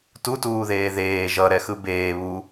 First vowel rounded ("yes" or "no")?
yes